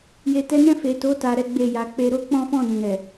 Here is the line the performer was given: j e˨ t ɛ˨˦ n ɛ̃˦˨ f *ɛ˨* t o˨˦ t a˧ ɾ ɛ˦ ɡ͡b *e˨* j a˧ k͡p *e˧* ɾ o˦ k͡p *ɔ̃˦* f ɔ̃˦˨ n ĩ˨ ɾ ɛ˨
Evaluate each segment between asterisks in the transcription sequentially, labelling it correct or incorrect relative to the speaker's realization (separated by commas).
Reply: incorrect, incorrect, correct, correct